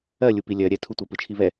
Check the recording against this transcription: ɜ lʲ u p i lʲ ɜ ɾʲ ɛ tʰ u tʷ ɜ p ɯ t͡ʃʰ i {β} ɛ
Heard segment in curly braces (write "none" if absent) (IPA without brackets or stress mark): β